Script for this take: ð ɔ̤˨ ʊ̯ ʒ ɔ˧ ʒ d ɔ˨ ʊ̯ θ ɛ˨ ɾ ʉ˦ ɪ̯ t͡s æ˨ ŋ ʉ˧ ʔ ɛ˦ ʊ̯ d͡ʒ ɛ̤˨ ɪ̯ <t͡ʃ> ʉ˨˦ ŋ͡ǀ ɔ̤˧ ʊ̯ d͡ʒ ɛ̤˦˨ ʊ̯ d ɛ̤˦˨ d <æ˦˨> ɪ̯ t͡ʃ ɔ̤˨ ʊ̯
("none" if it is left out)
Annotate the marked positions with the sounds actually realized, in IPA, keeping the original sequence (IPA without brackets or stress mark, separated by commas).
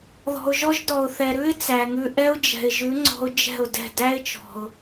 ʒ, æ˦